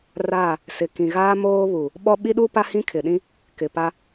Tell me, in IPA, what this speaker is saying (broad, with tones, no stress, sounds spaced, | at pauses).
r a˦˨ | s ɪ˨ k ĩ˨ ɣ aː˦ m oː˦ β u˨ | ɓ ɔ˦ ɓ i˦ ɗ u˦ p a˦ h ĩ˦ kʰ ɪ˨ ɗ ĩ˦ | k ɪ˨ p a˦